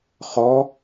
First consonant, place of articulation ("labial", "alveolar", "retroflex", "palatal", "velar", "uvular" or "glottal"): uvular